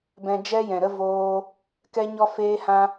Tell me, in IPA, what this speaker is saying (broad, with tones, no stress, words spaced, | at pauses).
bɛ̃˧d͡ʒɛ˦jɛ̃˨ɾə˦ voː˦ | kɛ˦ɲɔ˦feː˦hã˦